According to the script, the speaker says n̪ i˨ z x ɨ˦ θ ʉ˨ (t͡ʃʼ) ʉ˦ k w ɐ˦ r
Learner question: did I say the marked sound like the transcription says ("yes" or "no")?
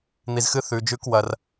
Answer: no